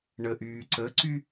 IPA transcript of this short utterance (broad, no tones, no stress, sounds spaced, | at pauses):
ɳ ə ʔ yː ǀ ə ǀ y